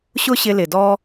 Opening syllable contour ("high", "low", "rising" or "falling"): high